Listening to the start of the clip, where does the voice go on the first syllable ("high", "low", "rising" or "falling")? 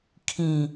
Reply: falling